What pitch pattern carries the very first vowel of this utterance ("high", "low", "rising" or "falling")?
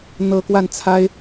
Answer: high